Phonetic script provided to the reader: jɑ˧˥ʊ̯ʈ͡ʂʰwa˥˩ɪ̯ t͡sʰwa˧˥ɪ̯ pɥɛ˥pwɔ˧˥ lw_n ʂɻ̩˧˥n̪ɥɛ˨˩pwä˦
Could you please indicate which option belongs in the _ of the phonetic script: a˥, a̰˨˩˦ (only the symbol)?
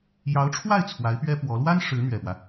a˥